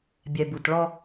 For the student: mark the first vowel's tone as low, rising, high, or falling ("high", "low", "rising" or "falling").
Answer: low